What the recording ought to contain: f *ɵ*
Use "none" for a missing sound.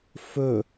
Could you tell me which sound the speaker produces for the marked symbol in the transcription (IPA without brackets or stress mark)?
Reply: ɵ